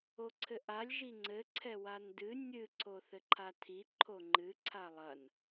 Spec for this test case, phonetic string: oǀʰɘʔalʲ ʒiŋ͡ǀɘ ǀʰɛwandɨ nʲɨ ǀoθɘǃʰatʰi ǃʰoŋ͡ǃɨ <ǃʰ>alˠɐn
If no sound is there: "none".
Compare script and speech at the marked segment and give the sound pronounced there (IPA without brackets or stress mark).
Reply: ǀʰ